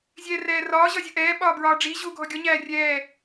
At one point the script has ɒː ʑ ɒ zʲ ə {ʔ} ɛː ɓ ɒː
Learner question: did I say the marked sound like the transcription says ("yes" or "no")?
yes